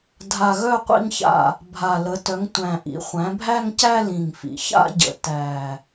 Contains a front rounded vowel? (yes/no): yes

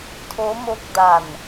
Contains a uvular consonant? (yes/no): no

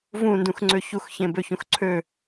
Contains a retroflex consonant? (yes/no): no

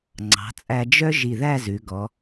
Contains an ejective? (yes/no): yes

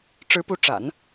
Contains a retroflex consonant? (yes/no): yes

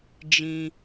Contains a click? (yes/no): no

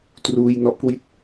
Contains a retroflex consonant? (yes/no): no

